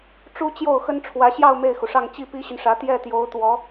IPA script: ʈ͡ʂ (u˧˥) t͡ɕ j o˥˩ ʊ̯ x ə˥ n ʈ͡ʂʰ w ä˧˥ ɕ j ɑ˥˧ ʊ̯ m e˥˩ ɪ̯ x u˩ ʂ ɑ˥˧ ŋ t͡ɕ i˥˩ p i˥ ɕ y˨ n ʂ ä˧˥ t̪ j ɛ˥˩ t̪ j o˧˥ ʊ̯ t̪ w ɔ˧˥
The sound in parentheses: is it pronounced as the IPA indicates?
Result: no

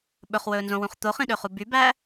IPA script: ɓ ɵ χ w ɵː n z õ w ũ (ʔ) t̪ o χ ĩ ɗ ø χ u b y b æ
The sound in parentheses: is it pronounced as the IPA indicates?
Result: no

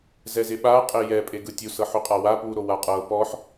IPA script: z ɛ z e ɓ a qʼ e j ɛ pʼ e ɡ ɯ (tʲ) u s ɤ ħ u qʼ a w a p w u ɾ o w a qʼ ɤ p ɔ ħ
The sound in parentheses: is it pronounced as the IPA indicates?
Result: yes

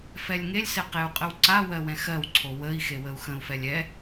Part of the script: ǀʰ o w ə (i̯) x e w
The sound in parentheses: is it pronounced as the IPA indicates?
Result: yes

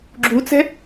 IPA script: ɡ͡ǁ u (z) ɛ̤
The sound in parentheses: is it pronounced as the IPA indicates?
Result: no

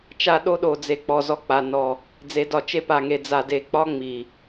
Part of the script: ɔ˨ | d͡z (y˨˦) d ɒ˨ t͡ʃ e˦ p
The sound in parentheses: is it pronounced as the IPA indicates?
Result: no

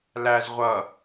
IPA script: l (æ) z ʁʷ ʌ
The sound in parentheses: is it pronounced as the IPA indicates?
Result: yes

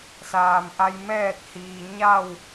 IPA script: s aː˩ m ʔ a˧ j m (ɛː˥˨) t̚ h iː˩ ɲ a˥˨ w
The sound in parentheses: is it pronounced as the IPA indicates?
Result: yes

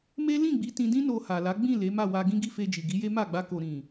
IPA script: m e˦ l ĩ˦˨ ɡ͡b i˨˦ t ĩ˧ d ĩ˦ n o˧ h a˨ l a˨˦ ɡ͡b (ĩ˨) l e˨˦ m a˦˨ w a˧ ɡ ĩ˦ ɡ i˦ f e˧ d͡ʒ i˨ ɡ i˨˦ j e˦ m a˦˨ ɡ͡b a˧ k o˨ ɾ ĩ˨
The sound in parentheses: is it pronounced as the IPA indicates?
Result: no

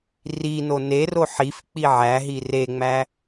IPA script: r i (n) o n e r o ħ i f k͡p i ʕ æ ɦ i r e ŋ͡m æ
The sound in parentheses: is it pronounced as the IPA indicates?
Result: yes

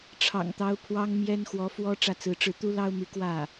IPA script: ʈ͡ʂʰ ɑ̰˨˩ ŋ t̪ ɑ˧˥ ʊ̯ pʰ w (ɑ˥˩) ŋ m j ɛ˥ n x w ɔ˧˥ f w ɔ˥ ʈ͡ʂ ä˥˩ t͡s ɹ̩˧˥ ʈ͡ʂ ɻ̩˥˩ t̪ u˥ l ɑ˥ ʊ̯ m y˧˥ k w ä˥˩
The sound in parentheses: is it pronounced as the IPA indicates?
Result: no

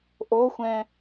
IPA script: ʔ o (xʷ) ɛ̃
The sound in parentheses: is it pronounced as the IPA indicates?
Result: yes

